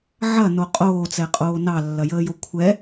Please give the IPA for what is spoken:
ʕ ɐ n o qʼ oː t͡s ɛ qʼ oː n ɑ lː ɐ j əː j o kʷʰ ɛ

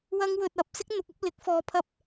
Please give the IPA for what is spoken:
w ɐ˥ ŋ w ɵ˧ t̚ ɐ˨˥ p̚ s ɪ˥ k̚ n̪ ʊ˨ k̚ ɐ˨˥ p̚ l ɪ˨˥ k̚ f ɔː˧ pʰ ɐ˥ p̚

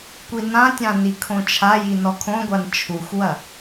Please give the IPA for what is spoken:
kʷ i n ã tʲ ã n i kʰ õ t͡ʃʰ a j i n ɔ kʰ õ ɡʷ a n t͡ʃʰ u xʷ w ɐ

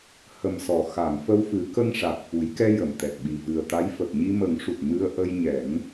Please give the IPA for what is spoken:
h ə˨˩ m s ɔ˨˩˨ x a˨˩˨ ŋ f ə˧ w f ɨ˨˩˦ k ə˧ ŋ ʂ a˨˩ t̚ f u˨˩˦ j k ɛ˧ j ə˨˩˨ m t̪ ɛ˨˩ t̚ ɓ i˨˩ v ɨ˨˩ ə̯ t̪ a˧˥ j f ə˨˩ k̚ ɲ i˧ m ə˨˩˦ ŋ ʂ u˨˩ t̚ m ɨ˧ ə̯ ʔ ə˧ j ɲ ɛ˨˩˦ ŋ

